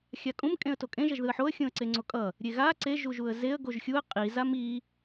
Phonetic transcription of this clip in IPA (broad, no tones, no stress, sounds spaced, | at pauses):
xʲ a kʼ ũ m kʼ ẽ ə̯ t o kʼ ẽ ʒ ʌ ʒ ð ɯ ə̯ ħ o ə̯ xʲ ũ ə̯ ǀ e ŋ͡ǀ o kʼ ʌ | ɾʲ e ɣ a ǀ e ʒ u ʒ u ə̯ z e ə̯ ɡ o ʒ xʲ u ə̯ qʼ i z a m i